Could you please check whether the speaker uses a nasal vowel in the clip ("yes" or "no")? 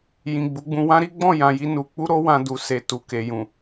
yes